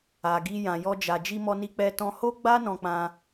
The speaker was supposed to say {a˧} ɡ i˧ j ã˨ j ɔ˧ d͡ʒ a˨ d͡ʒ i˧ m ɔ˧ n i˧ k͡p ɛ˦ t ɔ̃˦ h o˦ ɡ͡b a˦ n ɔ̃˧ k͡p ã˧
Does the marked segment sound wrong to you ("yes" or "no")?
yes